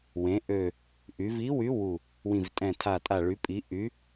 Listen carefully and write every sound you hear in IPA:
wẽ˩˧ʔø˨˩ | ʔy˩˧vi˨˥wy˨˥ wu˨˩ | wĩ˨˩vtʼɛ̃˨˩tʰa˨˩tʼa˨˩ ɭy˩˧pʼi˩˧ ʔy˩˧

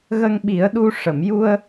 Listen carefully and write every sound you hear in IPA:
ɣə˧ŋɓi˨˩˦ə̯ɗu˧ ʂə˨˩˨mju˧ə̯

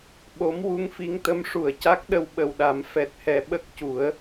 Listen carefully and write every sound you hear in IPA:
ɓo˧˥m wu˧˥ŋfi˧˥ŋt̪ə˧˥mʂu˨˩˨ə̯ ca˦˥k̚ɗə˧w ɓə˨˩wɗa˨˩˦m fɛ˨˩t̚hɛ˨˩ ɓə˦˥k̚cu˨˩˦ə̯

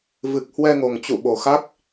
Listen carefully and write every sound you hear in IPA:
vɨ˨˩k̚hwɛ˧ŋo˨˩ŋt͡ɕṵ˧˨ ɓo˨˩xa˦˥k̚

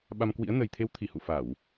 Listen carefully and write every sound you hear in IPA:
ɓa˧mkwḭ˧˥ə̯ nə˨˩jt̪ʰe˨˦wt̪ʰi˧˩hṵ˧˨ fa˧˩˨w

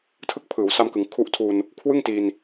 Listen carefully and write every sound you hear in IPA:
tʰɯ˦˥k̚ pʰɯː˩˦wsa˧mkɯ˩˦ŋ kʰu˦˥ʔtʰu˧n | kʰwɯ˥˩ŋ ti˧n

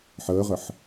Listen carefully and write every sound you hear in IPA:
ħəːʁəħ

